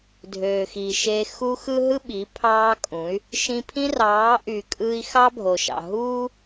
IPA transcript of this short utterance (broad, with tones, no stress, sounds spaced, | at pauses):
dʱ øː˨ x iː˨ ʃ e˧ x u˧ x ɯ˦ ɦ ɯ˦ ɓ i˨˦ pʰ ɑː˦ kʼ ũ˨˦ y̯ | ʃ ĩ˧ pʰ ĩ˦ r ɑː˨˦ ʔ y˨ kʼ ɯː˧ i̯ x ɑ˦ bʱ o˨ ʃ ɑ̰˨ ɦ uː˦